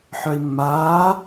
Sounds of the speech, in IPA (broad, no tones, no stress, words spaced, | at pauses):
ħœi̯mːaː